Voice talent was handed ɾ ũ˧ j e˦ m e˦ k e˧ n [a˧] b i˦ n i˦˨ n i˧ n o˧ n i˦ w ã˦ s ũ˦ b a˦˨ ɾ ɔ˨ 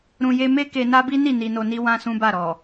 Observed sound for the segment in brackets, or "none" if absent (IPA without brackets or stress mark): a˦